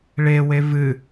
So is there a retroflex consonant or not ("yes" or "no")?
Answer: yes